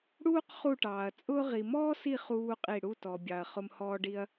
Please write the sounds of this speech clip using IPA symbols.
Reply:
ɽ uː˥ q χ u˦˨ ʈ ɑː˨ ɐ̯ t͡sʼ ʊː˥ ʁ i˨ m ɔː˥ s i˦˨ χ uː˥ qʼ i˦˨ ɽ u˦˨ t ɔ˨ bʲ ɑ˨ ɐ̯ χ ʊ˥ m h ɔː˥ ɖ i˥ ɐ̯

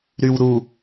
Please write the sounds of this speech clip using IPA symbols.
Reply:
ɾ y w ɾ u

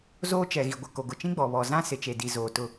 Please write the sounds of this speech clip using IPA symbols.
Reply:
z oː˦ t͡ʃ ɛ˨ ɣ i˨ ɡʷ ɪ˨ k o˨ ɡ ʊ˨ t͡ʃ ĩ˦ ɡ͡b ɔ˨ β ɔ˨ z ã˦ s ɪ˨ t͡ʃ e˨ d i˨ z oː˨ t ʊ˦˨

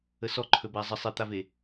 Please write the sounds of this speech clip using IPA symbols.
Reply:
ə s ɔ ǃʰ ɵ b æ zˤ ə sˤ e t̪ a v e

